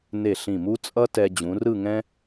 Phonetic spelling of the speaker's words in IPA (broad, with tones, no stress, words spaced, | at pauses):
ne˧˩ɬĩ˧˩mu˥t͡sʼʌ˥ tɛ˧ d͡ʑũ˩˧rɯ˥˧ ŋɛ̃˥